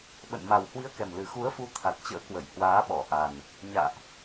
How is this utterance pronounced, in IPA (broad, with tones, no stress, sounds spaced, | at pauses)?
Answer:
ɓ ə̰˧˨ n m a˨˩ w h w i˧ ə̯ k ɛ˨˩ m l ɨ˨˩ x u˨˦ ə̯ f u˨˦ t̪ʰ a˨˩ t̚ t͡ɕ ə̰ː˧˥ k w ə˧˩ j h w aː˨˦ ɓ ɔ˧˩ ʔ a˨˩ n | ɲ a̰ː˧˨ ʔ